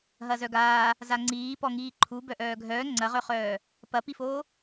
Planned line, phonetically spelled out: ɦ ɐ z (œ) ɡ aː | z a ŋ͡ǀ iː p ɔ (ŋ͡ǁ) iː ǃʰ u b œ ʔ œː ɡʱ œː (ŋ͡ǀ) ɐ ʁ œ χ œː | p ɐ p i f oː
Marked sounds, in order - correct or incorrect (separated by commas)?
correct, incorrect, correct